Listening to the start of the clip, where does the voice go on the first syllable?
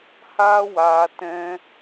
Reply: high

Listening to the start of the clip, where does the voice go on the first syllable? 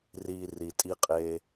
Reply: low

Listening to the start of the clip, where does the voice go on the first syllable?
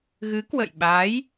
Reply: rising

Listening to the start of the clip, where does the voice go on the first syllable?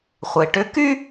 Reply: low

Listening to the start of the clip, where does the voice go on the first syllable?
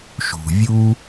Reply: low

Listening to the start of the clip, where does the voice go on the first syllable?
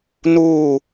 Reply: low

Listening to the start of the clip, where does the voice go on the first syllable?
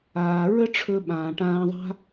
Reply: low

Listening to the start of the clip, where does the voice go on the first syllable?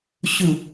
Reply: low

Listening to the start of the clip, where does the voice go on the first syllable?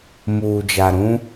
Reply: low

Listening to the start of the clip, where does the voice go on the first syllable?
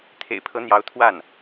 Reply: low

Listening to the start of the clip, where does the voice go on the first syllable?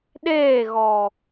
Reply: falling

